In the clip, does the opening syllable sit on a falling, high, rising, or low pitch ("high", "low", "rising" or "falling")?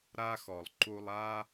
high